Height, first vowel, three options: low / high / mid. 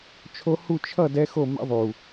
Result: mid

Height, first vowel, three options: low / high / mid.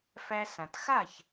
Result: low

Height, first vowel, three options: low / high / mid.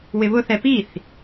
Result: high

